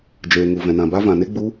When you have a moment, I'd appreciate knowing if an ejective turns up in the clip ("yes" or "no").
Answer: no